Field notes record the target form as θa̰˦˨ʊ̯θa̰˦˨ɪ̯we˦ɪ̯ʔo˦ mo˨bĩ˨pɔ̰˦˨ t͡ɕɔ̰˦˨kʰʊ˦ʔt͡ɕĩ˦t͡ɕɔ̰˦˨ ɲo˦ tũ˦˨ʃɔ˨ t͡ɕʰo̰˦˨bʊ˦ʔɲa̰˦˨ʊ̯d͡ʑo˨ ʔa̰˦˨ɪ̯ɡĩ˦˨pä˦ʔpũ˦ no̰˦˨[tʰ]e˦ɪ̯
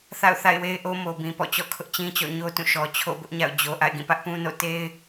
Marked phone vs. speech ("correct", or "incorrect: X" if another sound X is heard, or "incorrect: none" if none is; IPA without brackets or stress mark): incorrect: t